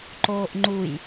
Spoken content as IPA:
ǃ oː ʔ ŋ͡ǃ u j

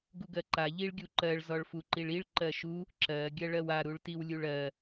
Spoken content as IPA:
ɡ u ɡ ɜ ǃ a ʎ i ɭ ɡʲ u ǃ ɜ ɭ z ɔ ɭ f u ǃ i ɭ i ɭ ǃ ɜ ʃ u | ǁ ɜ ɡʲ ɜ ɭ ɜ w a ɾ u ɭ t i w lʲ u ɭ ɜ

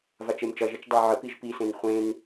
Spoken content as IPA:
v a t͡ʃ e m t͡ʃ ʌ ʒ e t͡ʃ dˤ a ʕ ə p i ʒ p i s ẽ n χʷ ẽ n

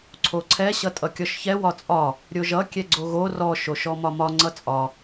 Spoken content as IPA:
ǀʰ o ǀʰ ɛ ɕ ʌ tʼ ʌ kʲ ɔ ʃ ç ɛ w ɒ t͡sʼ ɒ | ɾʲ o ʒ ʌ kʲ ɛ ɡ͡ǀ o ɣ o r ɔ ʃ o ʃ ɔ m ɒ m ɒ ŋ͡ǀ ʌ t͡sʼ ɒ

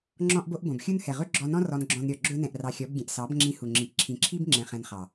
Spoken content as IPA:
ŋ͡ǁ ɔ̃˧ ʔ b o˧ ʔ b õ˨ b xʲ u˦ n h ɛ˨ ʁ ɵ˦ ɡ͡ǁ ɔ˧ n ɔ̃˦ r ɔ˧ n ɡ͡ǁ ɔ̃˧ n ɾʲ ɔ˨ ɡ͡ǁ ɵ˦ n ɛ̃˧ ʔ r ɑ˧ xʲ ɔ˨˦ b ɡʲ ɛ̃˨ ʔ s ɑ˨˦ b ŋ͡ǁ ĩ˧ h u˨ ŋ͡ǁ i˨ ʔ ǁʰ ĩ˨ ǁʰ i˦ b ŋ͡ǁ ɛ̃˨ χ ɛ̃˧ n χ ɑ˨

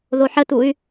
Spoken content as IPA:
ð o ħ ə t̪ u y̯

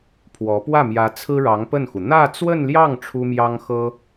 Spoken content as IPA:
pʰ w ɔ˧˥ p w ä˥˩ m j ä˧˥ t͡sʰ ɹ̩˥ ɻ ɑ˧˥ ŋ p ə˥˩ n x u˩ n̪ ä˥˧ t͡s w ə˥˧ n l j ɑ˥˩ ŋ ʈ͡ʂʰ u˥ m j ɑ˥ ŋ x ɤ˥

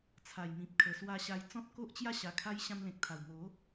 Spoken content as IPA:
t͡sʰ a˨˩ j m ĩ˨ p̚ kʰ ə˨˩ s w a˧ ɕ a˧ j t͡s ɔ̃˦ t̚ k o˦ ʔ t͡ɕ j a˥˧ ɕ a˨˩ kʰ a˧ j ɕ ã˧ m l ẽ˨ k̚ t̪ʰ a˨˩ w m o˨˦

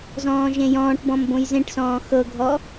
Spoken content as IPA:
z ɔ̃ː ʒ ẽ j ɔ̃ː ʈ b ɔ̃ m b õ j z ẽ ʈ s ɔ̃ː x ɤ ɡʱ ɔ

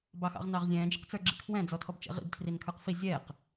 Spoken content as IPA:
b ɑ x ɑ̰ ʁ n ɑ ʁ zʲ ɛ̃ː d͡ʒ ɪ q t͡s ə˞ ɡ͡ǁ ḭ kʰ w ɛ̃ d͡z ɔ tʰ ɔ b t͡ʃ ɛ̰ ʁ ḭ b tʰ r i n kʰ ə˞ q f i zʲ ɛː q

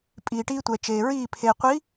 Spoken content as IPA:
pʼ iː˨ ʈ iː˦ tʷ ɛ˨ t͡ʃ eː˨ ɹ iː˦˨ pʰ eː˨ qʷ i˨˦

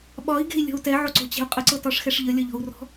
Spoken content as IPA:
ɓ ɒ i̯ ɡ e̤ i̯ lʲ ɔ̤ u̯ t ɛ ʕ o ǀ o̤ t͡ɕ e̤ u̯ qʼ ə ǀ ɤ t ɒ ʂ x ɛ ʂ ʎ ə lʲ ɒ ʎ ɔ̤ u̯ r ɔ̤

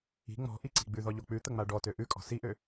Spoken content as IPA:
i̤ ŋ͡m ɔ̤ ʔ i ǀ i̤ ɡ͡b ʉ ð ɔ ʎ o k͡p ʉ t̪ ə ŋ͡m a ɖ ɔ t ø ʔ ʉ kʼ ɔ̤ s i ʔ ø

